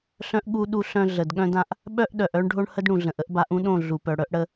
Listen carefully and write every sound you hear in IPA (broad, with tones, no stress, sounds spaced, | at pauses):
ɬ œ̃˦ ʔ ɠ u˦ ɗ u˦ ɬ œ̃˦ ɮ ə˨ d ɠ œ̃˦ d ã˦ ʔ | ɓ œ˦ ʔ ɗ œ˨ ʔ œ˦ ɳ ɖʱ o˦ ɳ h ə˦ d ɽ ũ˨ ɮ ə̃˨ ʔ ə˦ ʔ b a˨˦ ʔ ũ˦ ɗ õ˦˨ ɮ u˨ p œ˨ ɽ œ˦ ʔ ɽ ə˦